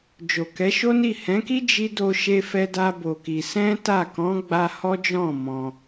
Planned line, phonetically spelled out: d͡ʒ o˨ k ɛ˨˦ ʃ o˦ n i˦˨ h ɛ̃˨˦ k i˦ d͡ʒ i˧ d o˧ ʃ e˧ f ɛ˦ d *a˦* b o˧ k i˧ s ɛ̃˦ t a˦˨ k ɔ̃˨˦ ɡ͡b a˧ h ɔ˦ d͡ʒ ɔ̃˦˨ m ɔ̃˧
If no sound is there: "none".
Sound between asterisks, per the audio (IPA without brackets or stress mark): a˦